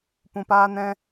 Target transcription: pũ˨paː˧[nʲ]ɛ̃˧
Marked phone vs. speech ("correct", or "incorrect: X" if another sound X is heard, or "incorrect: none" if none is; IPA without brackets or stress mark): incorrect: n